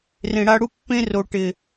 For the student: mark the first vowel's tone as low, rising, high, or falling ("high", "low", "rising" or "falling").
low